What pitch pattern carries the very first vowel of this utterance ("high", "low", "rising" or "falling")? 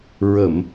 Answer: low